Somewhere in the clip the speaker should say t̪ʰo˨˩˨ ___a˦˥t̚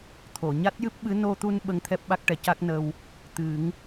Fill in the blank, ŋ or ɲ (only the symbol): ɲ